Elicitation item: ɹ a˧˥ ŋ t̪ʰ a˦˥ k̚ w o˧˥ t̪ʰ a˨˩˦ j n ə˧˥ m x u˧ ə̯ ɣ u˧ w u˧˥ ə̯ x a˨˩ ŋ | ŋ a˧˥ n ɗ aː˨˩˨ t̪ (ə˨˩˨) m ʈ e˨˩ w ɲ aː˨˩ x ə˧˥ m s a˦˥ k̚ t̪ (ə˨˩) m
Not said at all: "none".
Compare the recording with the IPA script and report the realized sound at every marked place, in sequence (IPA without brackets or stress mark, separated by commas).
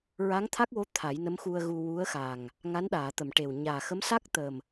ə˨˩˨, ə˨˩